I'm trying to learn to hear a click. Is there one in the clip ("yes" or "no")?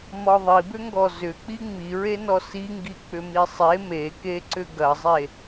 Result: yes